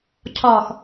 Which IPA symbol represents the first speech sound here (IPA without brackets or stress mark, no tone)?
cʰ